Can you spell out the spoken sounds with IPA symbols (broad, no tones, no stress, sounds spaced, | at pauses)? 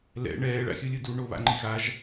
l ɛ̰ ɳ ɛː ɭ a̰ xʲ ɯ lʲ ɯ d u ɳ o β a̰ ŋ͡ǃ i ɣ a ʒ